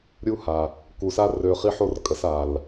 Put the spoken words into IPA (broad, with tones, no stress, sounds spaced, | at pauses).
ɾʲ u˦ h a˨ | k u˨ s a˦ r ø˧ χ i˦ ħ o˦ r kʼ ə˨˦ s a˨ l